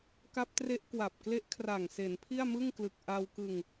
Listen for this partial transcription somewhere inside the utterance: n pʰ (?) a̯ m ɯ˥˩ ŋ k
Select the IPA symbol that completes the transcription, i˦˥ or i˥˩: i˥˩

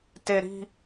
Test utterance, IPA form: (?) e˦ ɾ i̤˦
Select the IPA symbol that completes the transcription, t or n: t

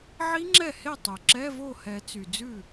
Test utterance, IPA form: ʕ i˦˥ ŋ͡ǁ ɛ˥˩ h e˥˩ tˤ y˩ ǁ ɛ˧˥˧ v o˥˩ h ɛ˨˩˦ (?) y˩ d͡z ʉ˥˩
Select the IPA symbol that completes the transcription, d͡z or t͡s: t͡s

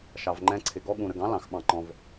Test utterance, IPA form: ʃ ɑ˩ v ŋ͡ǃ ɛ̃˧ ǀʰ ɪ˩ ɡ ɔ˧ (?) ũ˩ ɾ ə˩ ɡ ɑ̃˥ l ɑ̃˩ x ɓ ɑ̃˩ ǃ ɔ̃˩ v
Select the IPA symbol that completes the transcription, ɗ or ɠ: ɠ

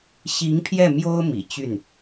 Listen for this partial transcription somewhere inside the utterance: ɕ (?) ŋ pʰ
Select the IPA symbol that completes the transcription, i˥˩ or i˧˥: i˧˥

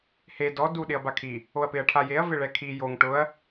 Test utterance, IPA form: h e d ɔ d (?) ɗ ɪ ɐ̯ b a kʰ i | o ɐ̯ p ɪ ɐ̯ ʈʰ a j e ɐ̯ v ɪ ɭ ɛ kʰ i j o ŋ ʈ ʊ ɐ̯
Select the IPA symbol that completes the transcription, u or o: u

